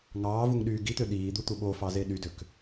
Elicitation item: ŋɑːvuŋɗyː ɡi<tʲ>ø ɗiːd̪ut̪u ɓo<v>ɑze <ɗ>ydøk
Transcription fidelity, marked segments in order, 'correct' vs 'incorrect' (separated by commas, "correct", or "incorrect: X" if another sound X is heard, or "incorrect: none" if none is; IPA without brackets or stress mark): incorrect: t̪, incorrect: f, correct